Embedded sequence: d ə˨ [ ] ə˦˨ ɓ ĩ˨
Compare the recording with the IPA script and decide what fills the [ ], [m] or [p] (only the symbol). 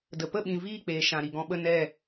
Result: p